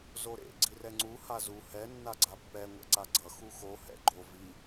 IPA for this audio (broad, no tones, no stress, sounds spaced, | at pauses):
z o ɾ ḛ ɡ͡ǀ i r ɛ ŋ͡ǀ u h a z u h ɛ nː a ɡ͡ǀ a pː ɛ ŋʷ ɛ̰ ǀ a ɡ͡ǀ ʌ x u x o h ɛ̰ ɡ͡ǃ o v i